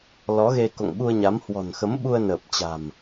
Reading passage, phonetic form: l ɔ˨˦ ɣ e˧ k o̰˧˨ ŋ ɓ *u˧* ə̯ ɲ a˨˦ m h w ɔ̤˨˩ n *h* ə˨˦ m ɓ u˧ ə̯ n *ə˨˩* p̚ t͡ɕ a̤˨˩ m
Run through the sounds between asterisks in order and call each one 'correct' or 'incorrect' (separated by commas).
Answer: correct, incorrect, incorrect